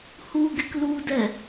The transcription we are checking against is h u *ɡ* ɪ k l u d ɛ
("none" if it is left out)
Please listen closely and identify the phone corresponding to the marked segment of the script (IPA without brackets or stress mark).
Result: ɡ